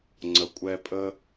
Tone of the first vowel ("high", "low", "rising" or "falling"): low